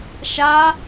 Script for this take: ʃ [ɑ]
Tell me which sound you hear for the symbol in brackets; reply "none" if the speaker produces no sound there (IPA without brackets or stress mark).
a